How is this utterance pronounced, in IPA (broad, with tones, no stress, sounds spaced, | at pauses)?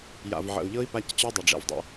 j a̰˨ v ʕ ə̰˨ u̯ ʎ ɤ˦ i̯ p a˦ c t͡ɕ ɤ˦ dˤ ɛ˨ ɖ͡ʐ ɛ̰˨ v dˤ ə̰˨